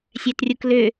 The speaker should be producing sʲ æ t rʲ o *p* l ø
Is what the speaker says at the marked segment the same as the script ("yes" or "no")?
no